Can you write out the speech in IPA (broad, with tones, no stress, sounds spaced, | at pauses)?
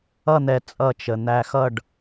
ʌ˥˧ n̪ ɛ˧ t͡sʼ ʌ˥˧ t͡ʃ ə˧ n̪ æ˧ x ʌ˥˧ ɖ